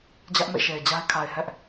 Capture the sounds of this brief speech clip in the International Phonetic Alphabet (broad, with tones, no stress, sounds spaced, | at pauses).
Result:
d͡ʑ ä˦ ʔ m ḛ˦˨ ʃ e˨ ɪ̯ d͡ʑ a˦ ɪ̯ kʰ a˨ ɪ̯ h ɛ˦ ʔ